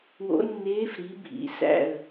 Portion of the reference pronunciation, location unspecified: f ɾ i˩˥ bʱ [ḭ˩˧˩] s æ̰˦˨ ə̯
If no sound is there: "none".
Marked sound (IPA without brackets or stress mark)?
ḭ˩˧˩